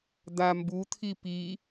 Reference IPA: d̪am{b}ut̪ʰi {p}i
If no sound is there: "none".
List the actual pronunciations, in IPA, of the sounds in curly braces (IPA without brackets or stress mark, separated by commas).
b, p